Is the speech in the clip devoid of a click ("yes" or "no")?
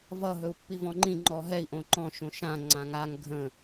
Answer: no